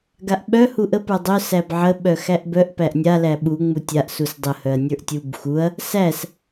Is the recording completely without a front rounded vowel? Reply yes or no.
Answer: no